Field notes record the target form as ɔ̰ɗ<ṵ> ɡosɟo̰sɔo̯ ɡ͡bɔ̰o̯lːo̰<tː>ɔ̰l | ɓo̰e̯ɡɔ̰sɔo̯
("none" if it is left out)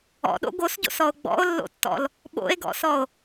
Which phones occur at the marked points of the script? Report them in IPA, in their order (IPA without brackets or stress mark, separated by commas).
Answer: o̰, tː